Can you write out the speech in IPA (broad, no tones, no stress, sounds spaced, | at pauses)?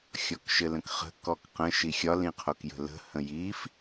xʲ ɔ k ʃ ɘ l ə̃ k χ ə̤ k ɔ k q ə̃ ʃ i xʲ ɒ l ĩ qʰ o k j ə̤ l ə̤ h ə̃ j i f